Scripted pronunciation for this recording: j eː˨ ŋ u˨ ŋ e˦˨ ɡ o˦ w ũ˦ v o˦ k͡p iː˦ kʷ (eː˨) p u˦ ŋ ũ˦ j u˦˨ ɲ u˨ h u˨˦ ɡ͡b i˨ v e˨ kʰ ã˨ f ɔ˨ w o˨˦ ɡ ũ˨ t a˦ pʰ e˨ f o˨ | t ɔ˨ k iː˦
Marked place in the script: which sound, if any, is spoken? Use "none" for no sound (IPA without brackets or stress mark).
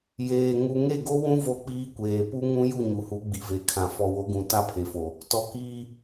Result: eː˨